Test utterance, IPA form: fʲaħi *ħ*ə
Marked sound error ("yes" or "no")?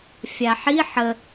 no